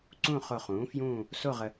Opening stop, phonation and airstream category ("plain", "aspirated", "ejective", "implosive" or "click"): click